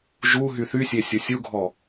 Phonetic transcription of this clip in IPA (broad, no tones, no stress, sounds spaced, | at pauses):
ʒ u ɦ y θ y sʲ e sʲ o sʲ u ɡʱ ɔ